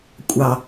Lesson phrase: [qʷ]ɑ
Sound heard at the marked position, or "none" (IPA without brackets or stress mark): kʷʼ